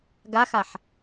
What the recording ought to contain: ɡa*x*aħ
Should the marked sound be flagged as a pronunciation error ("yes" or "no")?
no